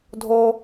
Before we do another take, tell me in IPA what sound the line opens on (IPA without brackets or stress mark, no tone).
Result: dʱ